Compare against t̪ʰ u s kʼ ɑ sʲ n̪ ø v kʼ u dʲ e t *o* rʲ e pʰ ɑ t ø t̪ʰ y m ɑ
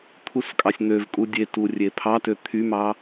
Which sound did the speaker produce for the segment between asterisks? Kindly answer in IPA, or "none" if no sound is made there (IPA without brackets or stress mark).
u